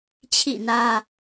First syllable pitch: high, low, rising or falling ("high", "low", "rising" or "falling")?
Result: falling